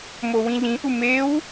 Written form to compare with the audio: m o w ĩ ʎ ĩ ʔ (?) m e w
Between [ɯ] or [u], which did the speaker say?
u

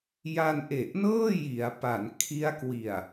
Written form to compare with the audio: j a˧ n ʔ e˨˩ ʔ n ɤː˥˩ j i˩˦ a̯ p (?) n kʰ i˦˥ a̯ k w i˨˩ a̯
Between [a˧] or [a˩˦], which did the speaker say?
a˩˦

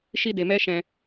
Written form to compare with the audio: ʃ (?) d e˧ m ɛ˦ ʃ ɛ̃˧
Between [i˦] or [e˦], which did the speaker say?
i˦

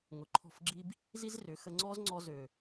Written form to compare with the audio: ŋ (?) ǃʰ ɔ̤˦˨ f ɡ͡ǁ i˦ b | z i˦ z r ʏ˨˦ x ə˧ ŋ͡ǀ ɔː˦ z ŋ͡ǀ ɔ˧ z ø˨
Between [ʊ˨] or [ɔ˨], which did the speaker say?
ʊ˨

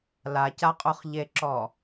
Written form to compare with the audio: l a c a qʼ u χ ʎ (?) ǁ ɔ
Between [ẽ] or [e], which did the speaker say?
e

